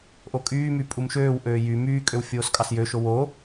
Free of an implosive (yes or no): yes